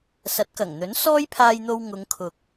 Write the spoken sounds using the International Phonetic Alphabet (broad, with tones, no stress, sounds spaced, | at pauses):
s ɐ˨˥ t̚ k ɐ˨˩ ŋ n̪ ɵ˨˥ n s ɔː˥ j pʰ aː˧ j n̪ o˧ w ŋ ʊ˨˧ ŋ kʰ ʊ˨ k̚